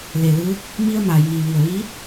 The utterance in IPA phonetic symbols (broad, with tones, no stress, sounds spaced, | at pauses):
l e˩ l ɯː˧˥ k̚ | m i˧ ə̯ m a˩ j iː˩ ʋ i˩ ə̯ ʋ iː˧˥ p̚